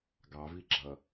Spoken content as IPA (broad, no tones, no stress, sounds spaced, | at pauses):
ɡ ɑ v i ɡ͡ǁ ʌ